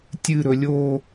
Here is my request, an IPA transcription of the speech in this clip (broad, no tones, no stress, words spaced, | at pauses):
tʲɨɾɵ lʲo